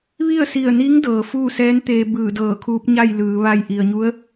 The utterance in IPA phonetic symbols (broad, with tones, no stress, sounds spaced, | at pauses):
ʋ i˥˨ ə̯ s i˧˩ ə̯ n i˧˥ ŋ d ɤː˩ f uː˥˨ s ɛː˧˥ n t̪ eː˧ b ɯː˧˩ d ɤː˧˩ kʰ uː˧˥ p̚ ɲ a˥˨ j l ɯː˩˧ ʋ a˧˩ j ʔ i˩ ə̯ ɲ u˧˥ ə̯